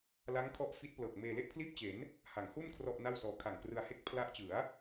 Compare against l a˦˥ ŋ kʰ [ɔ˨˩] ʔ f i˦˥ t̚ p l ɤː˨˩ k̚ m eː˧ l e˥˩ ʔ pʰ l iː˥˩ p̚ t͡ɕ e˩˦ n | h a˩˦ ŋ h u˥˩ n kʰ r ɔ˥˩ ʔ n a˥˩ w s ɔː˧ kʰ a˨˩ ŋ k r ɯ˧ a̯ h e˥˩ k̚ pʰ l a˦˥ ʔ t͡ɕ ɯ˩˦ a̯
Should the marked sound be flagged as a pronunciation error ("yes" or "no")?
yes